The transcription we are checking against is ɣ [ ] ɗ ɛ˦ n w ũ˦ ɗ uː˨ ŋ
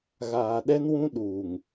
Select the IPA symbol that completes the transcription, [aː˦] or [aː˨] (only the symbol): aː˨